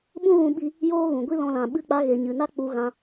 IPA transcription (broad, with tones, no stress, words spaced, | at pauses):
ɓũ˦ɣũ˧ɓi˧ | joː˦ɣũ˨ ɡʷi˦lɔ̃˧lã˨ ɓɨ˦k͡pa˦ ɣe˨ɲɨ˨na˦ k͡pu˧ɣã˧